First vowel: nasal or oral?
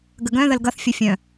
oral